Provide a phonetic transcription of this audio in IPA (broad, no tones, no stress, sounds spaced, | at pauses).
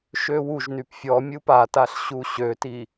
ʃ ø w u ʒ n y p fʲ ɔ mʲ u p a t a ɬ ɕ u ɕ ø t i